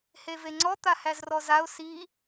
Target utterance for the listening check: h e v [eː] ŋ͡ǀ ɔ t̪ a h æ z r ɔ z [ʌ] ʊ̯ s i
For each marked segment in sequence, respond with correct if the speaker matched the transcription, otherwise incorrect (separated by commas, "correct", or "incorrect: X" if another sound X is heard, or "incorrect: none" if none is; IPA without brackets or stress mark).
incorrect: e, incorrect: a